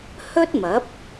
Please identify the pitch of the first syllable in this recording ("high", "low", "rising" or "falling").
high